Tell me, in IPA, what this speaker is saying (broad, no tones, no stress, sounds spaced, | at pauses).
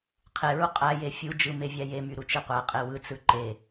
qʰ e ɹ u qʼ æ j e fʲ u d͡ʒ ɯ m e vʲ æ j e m y ɾ u t͡ʃ ɯ qʷ æ qʼ e w ɯ t͡s ɯ ǃ e